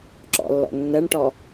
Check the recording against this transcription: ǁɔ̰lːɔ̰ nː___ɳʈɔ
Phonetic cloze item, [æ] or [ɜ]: ɜ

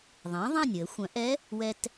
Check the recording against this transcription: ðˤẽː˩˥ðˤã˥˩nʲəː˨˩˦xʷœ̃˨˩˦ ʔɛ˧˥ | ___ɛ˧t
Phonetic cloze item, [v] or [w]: w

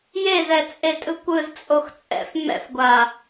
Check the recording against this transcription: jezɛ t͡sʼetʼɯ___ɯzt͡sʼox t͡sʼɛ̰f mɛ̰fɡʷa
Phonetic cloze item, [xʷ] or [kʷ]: kʷ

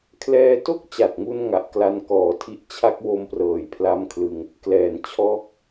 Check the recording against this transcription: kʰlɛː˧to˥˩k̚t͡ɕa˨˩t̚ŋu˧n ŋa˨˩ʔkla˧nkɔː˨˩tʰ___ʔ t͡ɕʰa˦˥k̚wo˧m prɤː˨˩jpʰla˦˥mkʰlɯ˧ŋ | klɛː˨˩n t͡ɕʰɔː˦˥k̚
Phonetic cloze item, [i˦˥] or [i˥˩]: i˦˥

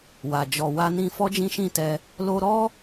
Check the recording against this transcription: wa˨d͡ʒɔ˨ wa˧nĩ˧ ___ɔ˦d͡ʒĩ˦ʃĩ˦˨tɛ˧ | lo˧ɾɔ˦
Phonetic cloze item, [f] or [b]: f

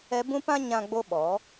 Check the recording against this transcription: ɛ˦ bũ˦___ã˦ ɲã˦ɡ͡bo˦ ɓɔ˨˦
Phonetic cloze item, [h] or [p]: p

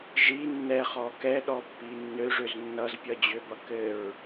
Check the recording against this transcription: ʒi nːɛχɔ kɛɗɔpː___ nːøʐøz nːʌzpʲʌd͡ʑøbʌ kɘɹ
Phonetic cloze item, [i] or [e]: i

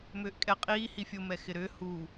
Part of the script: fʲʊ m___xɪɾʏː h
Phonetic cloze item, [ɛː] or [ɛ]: ɛ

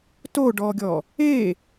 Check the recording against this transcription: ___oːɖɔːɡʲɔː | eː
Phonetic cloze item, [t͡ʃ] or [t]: t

